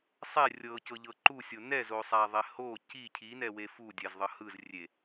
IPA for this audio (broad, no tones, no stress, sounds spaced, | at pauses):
sˤ ɛ rʲ ɤ c ɤ ʎ ɤ ǃ u sʲ o n ɛ z o sˤ a ðˤ ɛ h o c i cʰ i n ɛ w e f u dʲ ɛ z ðˤ ɤ h ɯ z rʲ e